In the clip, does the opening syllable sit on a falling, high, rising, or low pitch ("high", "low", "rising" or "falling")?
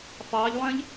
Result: rising